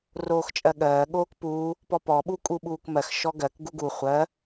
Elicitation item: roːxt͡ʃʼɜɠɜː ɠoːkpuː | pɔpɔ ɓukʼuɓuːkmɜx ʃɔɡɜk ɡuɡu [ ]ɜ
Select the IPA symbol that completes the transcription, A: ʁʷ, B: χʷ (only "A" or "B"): B